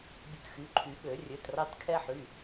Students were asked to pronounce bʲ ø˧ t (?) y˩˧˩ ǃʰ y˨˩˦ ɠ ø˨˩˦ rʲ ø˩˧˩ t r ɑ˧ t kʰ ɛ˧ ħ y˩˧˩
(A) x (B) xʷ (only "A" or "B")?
A